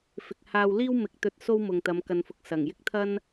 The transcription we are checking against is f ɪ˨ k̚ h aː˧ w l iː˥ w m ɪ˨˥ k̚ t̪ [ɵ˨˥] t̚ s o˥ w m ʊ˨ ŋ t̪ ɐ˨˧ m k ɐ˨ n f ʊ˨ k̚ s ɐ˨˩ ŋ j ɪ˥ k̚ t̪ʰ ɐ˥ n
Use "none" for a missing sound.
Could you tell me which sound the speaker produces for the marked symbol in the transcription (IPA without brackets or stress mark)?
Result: ɵ˧